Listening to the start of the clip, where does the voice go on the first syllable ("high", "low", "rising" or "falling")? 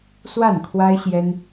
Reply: falling